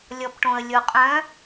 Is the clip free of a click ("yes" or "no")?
yes